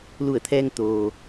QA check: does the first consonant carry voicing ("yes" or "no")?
yes